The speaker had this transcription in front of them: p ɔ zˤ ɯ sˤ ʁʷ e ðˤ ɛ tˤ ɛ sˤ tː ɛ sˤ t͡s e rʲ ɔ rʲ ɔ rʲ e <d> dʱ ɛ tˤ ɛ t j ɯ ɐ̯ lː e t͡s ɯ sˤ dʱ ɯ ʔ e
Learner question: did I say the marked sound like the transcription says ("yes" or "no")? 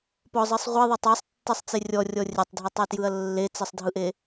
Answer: no